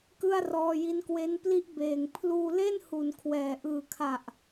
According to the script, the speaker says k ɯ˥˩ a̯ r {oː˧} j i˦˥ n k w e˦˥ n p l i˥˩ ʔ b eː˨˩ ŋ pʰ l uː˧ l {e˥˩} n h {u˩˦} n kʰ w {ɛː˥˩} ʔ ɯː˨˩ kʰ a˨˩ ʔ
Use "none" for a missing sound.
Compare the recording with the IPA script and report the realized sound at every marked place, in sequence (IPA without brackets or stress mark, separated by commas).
ɔː˧, e˥˩, u˩˦, ɛː˨˩